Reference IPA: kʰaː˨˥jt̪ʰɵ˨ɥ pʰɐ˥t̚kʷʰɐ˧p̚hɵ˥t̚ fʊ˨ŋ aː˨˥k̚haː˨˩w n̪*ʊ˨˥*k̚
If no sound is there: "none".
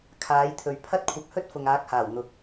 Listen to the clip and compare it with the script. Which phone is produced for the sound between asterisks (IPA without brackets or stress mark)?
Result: ʊ˨